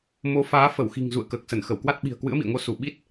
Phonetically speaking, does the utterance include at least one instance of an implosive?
yes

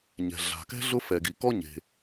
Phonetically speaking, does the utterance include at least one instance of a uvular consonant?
no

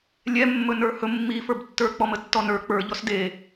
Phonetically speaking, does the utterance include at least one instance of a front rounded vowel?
no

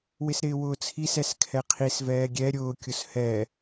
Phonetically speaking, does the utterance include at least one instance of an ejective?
no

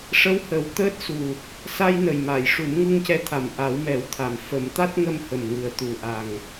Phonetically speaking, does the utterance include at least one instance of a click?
no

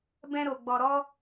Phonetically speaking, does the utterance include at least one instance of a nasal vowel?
yes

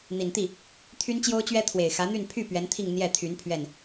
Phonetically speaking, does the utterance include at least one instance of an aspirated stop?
yes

